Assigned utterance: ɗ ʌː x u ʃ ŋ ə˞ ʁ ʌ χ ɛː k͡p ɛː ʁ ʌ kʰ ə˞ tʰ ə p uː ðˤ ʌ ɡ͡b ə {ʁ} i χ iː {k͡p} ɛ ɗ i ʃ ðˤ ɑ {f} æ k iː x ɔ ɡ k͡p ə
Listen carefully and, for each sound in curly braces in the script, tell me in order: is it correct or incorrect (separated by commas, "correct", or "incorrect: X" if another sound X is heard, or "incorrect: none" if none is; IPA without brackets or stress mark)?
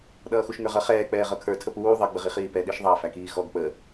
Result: correct, incorrect: p, correct